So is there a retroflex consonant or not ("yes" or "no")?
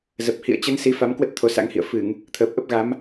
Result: no